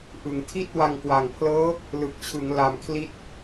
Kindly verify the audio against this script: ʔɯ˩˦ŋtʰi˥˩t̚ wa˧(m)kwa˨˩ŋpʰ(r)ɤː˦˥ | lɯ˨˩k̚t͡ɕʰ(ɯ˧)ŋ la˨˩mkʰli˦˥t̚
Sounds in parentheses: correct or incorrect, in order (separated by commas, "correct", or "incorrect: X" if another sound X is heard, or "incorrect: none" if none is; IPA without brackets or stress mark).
incorrect: ŋ, incorrect: l, incorrect: ɯ˩˦